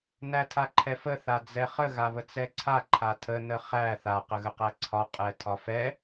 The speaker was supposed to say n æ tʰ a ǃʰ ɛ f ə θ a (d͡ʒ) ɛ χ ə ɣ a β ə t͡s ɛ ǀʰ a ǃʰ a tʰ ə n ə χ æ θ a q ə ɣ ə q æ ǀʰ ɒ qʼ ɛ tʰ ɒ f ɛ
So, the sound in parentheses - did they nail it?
no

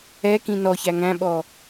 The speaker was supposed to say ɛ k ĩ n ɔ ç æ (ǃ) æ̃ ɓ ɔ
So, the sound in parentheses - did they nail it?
no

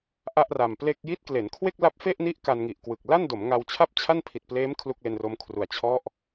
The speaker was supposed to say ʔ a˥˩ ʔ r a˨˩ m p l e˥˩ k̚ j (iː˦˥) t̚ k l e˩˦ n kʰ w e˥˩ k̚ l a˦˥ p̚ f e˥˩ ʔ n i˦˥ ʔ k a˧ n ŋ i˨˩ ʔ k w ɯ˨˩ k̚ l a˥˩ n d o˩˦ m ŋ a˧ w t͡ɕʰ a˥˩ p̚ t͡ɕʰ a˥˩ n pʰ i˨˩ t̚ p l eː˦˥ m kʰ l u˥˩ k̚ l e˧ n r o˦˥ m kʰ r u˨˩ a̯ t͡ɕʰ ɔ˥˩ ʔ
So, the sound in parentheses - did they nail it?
no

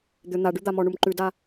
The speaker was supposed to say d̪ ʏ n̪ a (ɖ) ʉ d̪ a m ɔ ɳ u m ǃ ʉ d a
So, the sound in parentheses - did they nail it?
yes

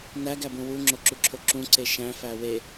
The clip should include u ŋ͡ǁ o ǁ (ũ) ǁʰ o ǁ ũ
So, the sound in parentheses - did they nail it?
no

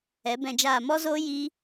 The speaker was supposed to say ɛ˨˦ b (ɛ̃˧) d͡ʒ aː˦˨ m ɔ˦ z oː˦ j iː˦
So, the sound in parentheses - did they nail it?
yes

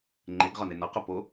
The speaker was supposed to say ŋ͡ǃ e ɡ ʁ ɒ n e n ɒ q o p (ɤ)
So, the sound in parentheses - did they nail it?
no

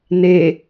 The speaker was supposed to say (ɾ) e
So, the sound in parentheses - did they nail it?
no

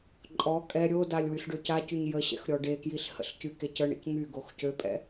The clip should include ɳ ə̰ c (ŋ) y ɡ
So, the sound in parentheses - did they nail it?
yes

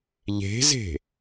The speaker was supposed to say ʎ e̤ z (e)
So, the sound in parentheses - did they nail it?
no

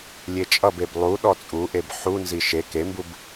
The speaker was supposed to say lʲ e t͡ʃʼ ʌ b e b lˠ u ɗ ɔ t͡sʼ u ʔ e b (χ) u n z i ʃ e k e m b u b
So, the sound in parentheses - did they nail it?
no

